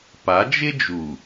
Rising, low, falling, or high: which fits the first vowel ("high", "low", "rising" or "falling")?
rising